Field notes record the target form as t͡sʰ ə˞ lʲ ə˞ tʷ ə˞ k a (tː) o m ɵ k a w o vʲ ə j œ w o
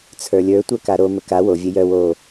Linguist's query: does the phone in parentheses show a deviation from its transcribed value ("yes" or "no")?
yes